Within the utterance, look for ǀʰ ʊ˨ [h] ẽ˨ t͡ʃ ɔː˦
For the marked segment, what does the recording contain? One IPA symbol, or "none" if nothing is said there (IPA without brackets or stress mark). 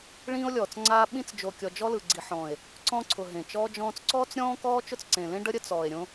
ɦ